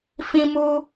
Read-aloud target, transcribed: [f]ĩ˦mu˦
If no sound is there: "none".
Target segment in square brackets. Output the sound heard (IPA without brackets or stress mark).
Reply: f